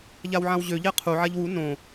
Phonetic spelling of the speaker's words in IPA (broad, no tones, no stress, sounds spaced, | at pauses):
ʎ a w ʕ ã w ʑ ø ʎ ɛ qʰ u ʕ a ʎ w u n õ